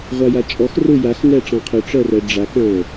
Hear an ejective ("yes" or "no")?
yes